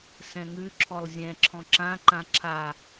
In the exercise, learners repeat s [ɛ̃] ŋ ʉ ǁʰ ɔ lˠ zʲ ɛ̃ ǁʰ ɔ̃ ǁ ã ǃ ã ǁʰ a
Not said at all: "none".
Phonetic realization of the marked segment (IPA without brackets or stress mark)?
ɛ̃